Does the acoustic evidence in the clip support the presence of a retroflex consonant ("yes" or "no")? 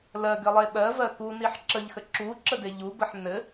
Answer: no